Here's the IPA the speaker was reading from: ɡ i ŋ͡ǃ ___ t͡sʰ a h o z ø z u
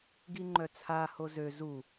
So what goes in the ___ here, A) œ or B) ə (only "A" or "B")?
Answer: A